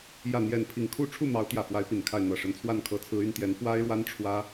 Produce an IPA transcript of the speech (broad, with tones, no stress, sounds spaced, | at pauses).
j ä˥˨ n̪ j ɛ˥˨ n pʰ i˥˨ ŋ kʰ u˥˨ ʈ͡ʂʰ u˥˨ m ɑ˨˦ ʊ̯ t̪ j ä˨˩ f w a˨˦ ɪ̯ p i˨˩ n kʰ a˥˨ ɪ̯ n̪ ɤ˨˩ ʂ ə˨˦ n t͡sʰ w a˥˨ n kʰ ɤ˨˦ t͡sʰ ɹ̩˨˦ y˥˨ n t̪ j ɛ˨˦ n f w a˦ ɪ̯ ɻ w a˦ n ʈ͡ʂʰ w ä˦